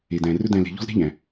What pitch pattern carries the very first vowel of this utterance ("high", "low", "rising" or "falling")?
low